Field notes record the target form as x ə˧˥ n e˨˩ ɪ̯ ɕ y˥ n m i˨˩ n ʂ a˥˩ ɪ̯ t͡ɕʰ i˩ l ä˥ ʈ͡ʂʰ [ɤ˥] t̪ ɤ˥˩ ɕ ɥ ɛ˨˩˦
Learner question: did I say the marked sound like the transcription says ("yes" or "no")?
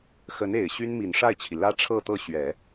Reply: no